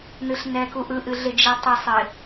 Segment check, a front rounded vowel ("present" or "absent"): absent